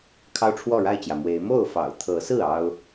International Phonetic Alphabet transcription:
kʰ ɑ˦ ʊ̯ ʈ͡ʂʰ w ɔ˥˨ ɻ a˥˨ ɪ̯ t͡ɕ j ä˩ m w e˨˦ ɪ̯ m o˥˨ ʊ̯ f ɑ̰˨˩ ʊ̯ t̪ʰ ɤ˨˦ s ɹ̩˥˨ ɑ˦ ʊ̯

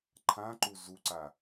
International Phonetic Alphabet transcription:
ǃʰ ã ǃ u z u ǀ a

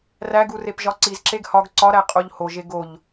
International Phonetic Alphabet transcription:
r æ ɡ u r e p ʒ ɒ ǀ i z ǁ e ɡ h ɒ ɡ ǀ ɒ ɾ æ qʼ o ʎ h o ʒ e ɡ o ʎ

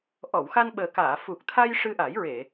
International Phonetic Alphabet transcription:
ʔ ɔ˨˩˨ w x a˧ n ɓ əː˨˩ k aː˨˩˨ f u˨˩ k̚ t̪ʰ a˧ j ʂ ɨ˧ ʔ a˨˩˦ j ɹ e˨˩˨

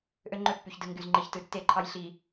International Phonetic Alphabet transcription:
ʔ ø˦ ŋ͡ǃ ø˦ pː y˨ ç d ɯ˨ ŋ ɡ y˨ z ŋ͡ǃ i˨ ç t ɯ˨ tː e˦˨ ǃʰ ɑ˦ j ɬ i˨

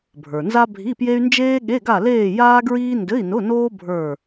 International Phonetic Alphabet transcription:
bʱ ə˞˩ n z a˥ bʱ i˧˥˧ p j e˥ y̯ n d͡ʒ eː˥ ɠ e˧˥˧ ɡ a˥˧ l eː˥˧ j aː˥ ɡ ɹ iː˥ n d ɘ˧˥˧ i̯ n ʊ˧˥˧ n oː˥ bʱ ə˞˥˧

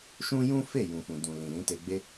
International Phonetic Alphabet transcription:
ʃ ũ˦ j ũ˦ f e˦˨ j ũ˨ f ũ˨ d ũ˨ l ĩ˨ l ĩ˨˦ t e˧ ɡ͡b e˦

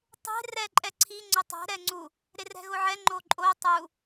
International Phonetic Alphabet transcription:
tˤ e̤ r ɛ ǃʼ ɛ ǀʰ i ŋ͡ǀ ʊ tˤ ɛ̤ ɾ ɛ ŋ͡ǀ u | ɾ e r ɛ̤ ɣ ʊ ʕ ɛ ŋ͡ǃ o ǃʼ o tˤ u

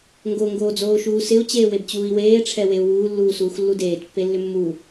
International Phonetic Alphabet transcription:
ŋ ɡ o ŋ ɡ oː d͡z oː ʃ uː s ɪ u̯ t͡ɕ eː w e b t͡ɕ uː i̯ w eː ʈ͡ʂʰ ɛ w e u̯ w uː lː uː s uː x lː u d eː t pː e lː ʏ mː u

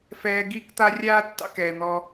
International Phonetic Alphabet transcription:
f ɛː˧ ɡ iː˦ k t̪ a˦ rʲ aː˦ tː ɑ̰˧ k ɛː˨ n̪ ɔ˧

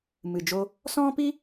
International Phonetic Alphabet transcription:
m ɨ˨ d͡ʒ o˧ | s ɔ̃˦ p i˦

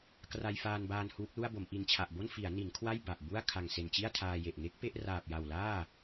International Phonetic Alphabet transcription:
k r a˧ j f aː˧ n b aː˧ n h uː˦˥ k̚ l u˥˩ a̯ b o˩˦ m ʔ i˨˩ n t͡ɕʰ a˨˩ ʔ b o˥˩ n f i˩˦ a̯ n i˩˦ n kʰ w a˥˩ j b a˨˩ ʔ b u˥˩ a̯ kʰ a˨˩ ŋ s e˨˩ n t͡ɕ i˥˩ a̯ tʰ aː˧ j e˨˩ ʔ ŋ e˦˥ k̚ p e˥˩ ʔ r aː˨˩ p̚ j a˨˩ w l aː˥˩

